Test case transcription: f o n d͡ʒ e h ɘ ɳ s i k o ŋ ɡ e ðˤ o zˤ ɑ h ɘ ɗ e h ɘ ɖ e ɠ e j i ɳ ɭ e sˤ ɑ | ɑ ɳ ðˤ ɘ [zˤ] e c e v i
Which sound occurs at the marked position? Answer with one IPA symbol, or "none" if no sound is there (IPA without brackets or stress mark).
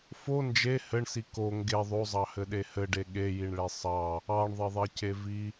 ðˤ